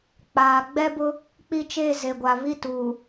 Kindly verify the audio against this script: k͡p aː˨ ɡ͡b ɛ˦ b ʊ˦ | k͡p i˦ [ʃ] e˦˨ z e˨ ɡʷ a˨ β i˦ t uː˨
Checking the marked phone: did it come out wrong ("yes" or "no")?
yes